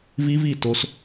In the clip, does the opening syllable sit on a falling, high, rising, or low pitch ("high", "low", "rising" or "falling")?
high